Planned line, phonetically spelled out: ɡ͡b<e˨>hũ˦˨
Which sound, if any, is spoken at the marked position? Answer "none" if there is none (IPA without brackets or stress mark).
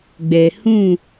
ɛ˨